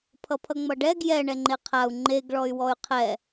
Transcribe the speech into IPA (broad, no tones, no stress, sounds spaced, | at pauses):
pʰ ʌ pʰ ʌ ŋ͡m ʌ ɖ ɛ ɡ j ɛ ɳ ɛ ŋ͡ǃ e qʰ a u̯ ŋ͡ǃ e ɡ ɭ ɔ y̯ w ɔ y̯ qʰ ɛ